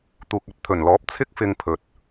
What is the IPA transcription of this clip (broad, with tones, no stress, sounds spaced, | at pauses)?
t̪ uː˨ k̚ ɐ˨ t̚ t̪ʰ ɵ˨˩ n l ɔː˨˥ p̚ t͡sʰ ɪ˥ k̚ f ɪ˧ ŋ pʰ ɵ˨ t̚